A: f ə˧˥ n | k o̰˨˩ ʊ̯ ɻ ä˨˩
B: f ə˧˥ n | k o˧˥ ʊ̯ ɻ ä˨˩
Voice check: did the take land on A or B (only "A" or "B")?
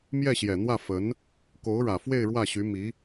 B